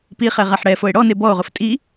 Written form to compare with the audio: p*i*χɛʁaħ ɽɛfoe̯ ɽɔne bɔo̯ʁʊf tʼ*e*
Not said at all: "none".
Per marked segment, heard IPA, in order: i, i

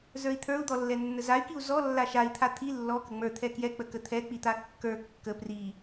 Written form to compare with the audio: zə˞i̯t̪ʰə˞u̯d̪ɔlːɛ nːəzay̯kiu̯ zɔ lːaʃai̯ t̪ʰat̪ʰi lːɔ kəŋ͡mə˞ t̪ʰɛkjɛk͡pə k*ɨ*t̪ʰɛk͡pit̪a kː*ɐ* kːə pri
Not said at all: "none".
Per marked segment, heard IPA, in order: ə, ə˞

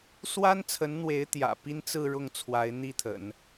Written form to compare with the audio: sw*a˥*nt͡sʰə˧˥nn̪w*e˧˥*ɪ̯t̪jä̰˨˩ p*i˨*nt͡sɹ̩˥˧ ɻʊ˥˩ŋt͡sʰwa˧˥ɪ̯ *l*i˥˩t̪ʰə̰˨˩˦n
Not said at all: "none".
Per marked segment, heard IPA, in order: a˥, e˧˥, i˥, n̪

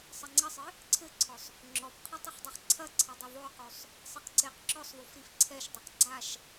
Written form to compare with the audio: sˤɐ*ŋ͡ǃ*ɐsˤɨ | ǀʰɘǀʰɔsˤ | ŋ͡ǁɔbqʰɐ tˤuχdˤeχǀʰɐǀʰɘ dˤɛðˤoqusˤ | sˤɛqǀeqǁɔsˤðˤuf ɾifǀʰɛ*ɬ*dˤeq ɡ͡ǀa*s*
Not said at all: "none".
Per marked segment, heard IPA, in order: ŋ͡ǀ, ʃ, ʃ

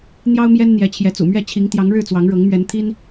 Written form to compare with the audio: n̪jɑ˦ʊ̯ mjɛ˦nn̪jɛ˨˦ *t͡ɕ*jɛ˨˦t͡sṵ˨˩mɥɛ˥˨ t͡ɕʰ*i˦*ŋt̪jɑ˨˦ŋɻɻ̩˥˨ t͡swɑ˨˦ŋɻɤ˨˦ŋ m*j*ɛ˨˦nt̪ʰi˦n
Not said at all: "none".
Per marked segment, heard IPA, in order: t͡ɕʰ, i˨˦, ɥ

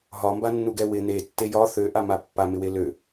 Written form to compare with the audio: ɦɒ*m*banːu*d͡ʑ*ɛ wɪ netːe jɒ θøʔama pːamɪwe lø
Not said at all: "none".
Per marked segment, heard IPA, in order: m, ɡ

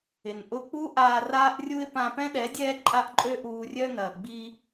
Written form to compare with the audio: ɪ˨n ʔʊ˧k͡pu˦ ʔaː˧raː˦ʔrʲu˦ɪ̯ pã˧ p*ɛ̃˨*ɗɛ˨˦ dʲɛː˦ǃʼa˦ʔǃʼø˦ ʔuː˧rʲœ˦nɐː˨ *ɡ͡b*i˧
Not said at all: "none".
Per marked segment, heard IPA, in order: ɛ̃˦, ɡ͡b

